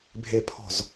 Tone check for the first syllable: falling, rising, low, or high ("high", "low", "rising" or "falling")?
low